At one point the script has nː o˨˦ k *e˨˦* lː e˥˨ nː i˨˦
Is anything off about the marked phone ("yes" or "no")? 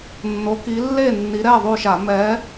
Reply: yes